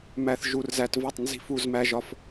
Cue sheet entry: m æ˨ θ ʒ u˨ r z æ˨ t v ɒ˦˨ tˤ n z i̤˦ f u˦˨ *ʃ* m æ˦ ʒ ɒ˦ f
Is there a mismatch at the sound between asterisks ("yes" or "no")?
yes